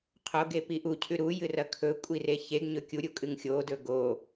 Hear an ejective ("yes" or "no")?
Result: yes